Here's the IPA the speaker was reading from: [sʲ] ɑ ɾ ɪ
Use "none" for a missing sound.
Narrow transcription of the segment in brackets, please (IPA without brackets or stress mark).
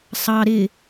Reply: sˤ